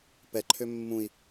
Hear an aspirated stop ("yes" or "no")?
yes